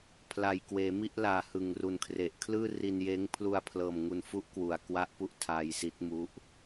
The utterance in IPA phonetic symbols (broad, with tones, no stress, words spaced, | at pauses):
pʰla˨˩jkweː˩˦mi˥˩ʔlaː˨˩ hɯ˨˩ŋru˨˩nkʰre˨˩ʔ kʰlɯː˥˩ri˧njeː˦˥ŋ pʰlu˧a̯pʰlɤː˨˩m ŋu˧nfu˥˩ʔkwu˨˩a̯ kwa˦˥ʔpu˦˥ʔ tʰaː˧jsi˦˥t̚mu˦˥ʔ